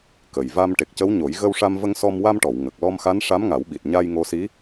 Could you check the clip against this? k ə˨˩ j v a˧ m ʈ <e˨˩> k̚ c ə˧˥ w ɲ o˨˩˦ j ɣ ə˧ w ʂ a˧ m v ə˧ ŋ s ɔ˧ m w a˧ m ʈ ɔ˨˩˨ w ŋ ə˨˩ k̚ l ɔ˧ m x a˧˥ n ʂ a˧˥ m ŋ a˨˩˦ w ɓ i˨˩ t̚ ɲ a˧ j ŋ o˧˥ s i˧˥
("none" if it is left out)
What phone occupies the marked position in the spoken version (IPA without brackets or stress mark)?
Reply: e˨˩